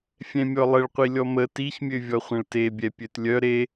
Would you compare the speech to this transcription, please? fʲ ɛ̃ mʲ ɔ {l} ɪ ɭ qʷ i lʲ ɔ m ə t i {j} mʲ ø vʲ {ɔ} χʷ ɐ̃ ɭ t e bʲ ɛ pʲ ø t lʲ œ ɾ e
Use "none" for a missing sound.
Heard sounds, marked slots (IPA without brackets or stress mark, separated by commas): lˠ, ç, ɔ